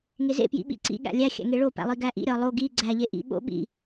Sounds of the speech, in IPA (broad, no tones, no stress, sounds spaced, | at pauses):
ŋ e z ḛ p j ḭ ɓ ḭ ǀ ḭ ɠ æ̰ lʲ æ xʲ æ̰ ŋ e ɭ o p æ̰ lˠ i ɡ æ ʔ ḭ ɾʲ ɒ lˠ o ɡ i ɡ͡ǀ æ ʎ e ʔ ḭ ɓ o̰ ɓ ḭ